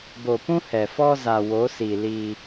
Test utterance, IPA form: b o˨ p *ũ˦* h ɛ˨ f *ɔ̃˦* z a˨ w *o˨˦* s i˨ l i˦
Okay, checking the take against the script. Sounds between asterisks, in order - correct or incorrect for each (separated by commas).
correct, incorrect, correct